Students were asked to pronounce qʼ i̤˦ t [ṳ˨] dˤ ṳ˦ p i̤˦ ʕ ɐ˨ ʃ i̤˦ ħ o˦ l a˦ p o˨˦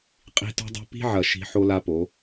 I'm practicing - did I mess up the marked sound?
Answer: yes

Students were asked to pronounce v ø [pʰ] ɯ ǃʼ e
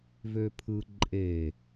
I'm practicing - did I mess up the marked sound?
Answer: no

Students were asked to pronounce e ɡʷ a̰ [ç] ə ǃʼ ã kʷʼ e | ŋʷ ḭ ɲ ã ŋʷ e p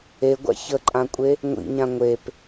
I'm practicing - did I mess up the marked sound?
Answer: no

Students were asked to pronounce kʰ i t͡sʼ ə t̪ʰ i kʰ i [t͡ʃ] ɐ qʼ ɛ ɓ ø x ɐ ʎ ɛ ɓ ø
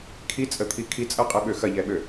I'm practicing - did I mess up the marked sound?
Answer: yes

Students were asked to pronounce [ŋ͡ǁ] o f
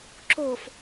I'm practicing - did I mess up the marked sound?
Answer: yes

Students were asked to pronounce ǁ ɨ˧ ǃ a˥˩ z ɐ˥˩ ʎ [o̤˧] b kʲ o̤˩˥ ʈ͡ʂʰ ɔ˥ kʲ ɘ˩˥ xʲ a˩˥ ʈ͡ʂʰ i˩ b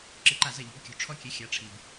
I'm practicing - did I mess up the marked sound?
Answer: yes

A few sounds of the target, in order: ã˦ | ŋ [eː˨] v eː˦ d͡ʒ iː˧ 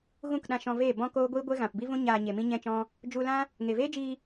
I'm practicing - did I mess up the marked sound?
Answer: yes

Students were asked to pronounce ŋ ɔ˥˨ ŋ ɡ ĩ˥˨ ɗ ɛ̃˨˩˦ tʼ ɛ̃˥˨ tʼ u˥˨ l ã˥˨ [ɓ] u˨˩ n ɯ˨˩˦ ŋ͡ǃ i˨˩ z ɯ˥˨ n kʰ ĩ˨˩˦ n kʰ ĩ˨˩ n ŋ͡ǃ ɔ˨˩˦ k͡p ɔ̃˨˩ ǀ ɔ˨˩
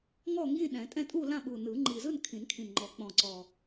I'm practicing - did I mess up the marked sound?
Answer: no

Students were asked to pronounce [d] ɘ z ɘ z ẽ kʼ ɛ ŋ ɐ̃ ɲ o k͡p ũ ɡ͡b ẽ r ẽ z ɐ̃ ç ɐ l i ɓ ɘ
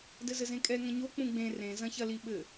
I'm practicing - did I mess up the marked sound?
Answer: no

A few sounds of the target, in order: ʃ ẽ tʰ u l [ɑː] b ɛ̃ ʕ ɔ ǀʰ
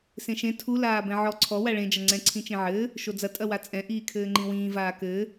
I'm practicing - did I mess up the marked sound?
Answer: yes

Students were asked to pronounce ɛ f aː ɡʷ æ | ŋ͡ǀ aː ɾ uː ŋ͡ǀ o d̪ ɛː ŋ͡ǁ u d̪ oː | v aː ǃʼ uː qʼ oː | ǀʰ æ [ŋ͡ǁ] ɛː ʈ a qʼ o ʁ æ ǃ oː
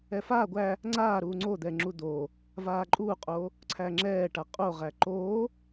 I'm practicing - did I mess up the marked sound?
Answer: no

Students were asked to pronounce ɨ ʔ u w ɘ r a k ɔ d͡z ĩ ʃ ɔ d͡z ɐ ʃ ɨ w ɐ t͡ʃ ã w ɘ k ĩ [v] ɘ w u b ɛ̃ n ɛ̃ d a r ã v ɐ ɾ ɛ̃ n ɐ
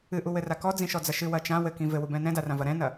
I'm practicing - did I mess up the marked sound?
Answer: no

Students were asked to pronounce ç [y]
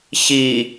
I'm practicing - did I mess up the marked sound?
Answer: yes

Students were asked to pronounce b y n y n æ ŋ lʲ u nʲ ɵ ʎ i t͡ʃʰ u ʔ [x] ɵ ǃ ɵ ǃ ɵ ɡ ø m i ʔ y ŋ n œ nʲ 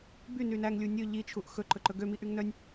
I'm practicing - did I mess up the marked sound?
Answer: no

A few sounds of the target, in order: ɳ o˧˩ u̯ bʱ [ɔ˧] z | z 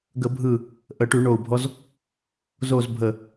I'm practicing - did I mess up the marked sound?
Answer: no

